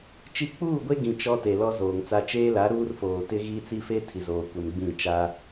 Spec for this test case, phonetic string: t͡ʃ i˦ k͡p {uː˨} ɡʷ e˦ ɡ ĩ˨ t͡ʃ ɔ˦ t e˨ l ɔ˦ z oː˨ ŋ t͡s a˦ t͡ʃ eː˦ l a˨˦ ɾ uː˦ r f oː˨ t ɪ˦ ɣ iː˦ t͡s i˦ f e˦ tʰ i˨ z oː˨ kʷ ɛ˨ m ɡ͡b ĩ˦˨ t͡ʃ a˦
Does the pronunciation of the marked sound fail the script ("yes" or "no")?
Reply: yes